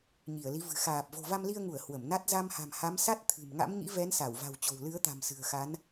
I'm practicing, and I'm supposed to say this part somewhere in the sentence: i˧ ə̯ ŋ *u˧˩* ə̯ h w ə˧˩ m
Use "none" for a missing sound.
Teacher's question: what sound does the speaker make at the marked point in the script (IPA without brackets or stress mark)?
u˧˩